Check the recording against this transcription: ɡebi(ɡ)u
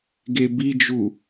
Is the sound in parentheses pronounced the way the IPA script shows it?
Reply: no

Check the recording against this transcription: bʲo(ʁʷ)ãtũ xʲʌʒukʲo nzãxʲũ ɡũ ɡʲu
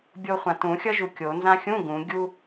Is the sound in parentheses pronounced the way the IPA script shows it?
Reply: no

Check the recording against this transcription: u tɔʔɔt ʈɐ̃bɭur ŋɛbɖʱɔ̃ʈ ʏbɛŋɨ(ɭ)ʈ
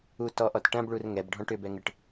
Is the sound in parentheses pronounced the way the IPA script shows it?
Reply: no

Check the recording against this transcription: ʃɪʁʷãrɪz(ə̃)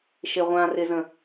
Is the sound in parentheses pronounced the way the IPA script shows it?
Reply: yes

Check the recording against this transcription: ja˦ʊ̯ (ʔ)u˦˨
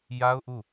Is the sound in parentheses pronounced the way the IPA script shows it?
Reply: yes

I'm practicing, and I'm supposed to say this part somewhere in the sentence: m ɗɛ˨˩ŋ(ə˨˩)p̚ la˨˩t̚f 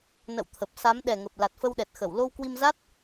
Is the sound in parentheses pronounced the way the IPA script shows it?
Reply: yes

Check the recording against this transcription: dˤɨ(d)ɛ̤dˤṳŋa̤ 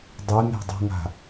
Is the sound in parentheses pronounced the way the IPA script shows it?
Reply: no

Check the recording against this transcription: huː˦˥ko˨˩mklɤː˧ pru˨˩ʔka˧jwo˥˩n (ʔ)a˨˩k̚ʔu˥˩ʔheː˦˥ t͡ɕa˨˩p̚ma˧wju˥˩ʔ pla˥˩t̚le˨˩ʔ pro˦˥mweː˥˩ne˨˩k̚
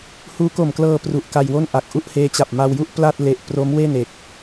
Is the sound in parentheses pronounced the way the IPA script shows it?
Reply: yes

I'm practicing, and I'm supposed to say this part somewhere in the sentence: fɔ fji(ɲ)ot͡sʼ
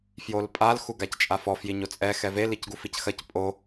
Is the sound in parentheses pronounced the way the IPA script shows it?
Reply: yes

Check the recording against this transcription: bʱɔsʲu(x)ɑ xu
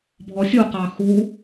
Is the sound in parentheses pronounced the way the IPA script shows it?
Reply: no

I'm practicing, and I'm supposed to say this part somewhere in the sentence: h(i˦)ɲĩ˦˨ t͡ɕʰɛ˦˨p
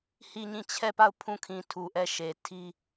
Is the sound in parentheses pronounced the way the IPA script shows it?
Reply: no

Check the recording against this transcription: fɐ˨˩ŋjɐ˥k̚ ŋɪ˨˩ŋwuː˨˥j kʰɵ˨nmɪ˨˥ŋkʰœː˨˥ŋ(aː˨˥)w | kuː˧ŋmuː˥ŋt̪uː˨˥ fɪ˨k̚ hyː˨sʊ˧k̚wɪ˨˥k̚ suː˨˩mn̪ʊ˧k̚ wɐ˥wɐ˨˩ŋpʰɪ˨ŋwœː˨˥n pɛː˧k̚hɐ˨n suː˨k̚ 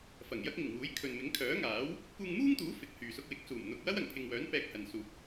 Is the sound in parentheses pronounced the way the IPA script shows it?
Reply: yes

